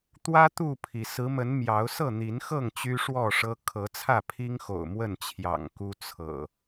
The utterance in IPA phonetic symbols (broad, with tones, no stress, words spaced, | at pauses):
t̪wä˦ t̪u˥˨pʰi˩ sɹ̩˨˦mə˨˦n mjɑ˨˦ʊ̯ sɤ˥˨n̪i˨˦nxɤ˥˨ŋ t͡ɕy˦ʂwɔ˥˨ʂɤ˦ kʰɤ˨˦t͡sʰä˥˨pʰi˦ŋxo̰˨˩ʊ̯ mwə˥˨nt͡ɕʰjɑ̰˨˩ŋ ku˦t͡sʰɤ̰˨˩